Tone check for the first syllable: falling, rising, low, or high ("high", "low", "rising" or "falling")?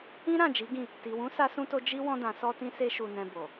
high